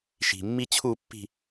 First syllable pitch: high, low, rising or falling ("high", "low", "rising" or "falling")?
low